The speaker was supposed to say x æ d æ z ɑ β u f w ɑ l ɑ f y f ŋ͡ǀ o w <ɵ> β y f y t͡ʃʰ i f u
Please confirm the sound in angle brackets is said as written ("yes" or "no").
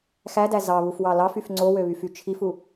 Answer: no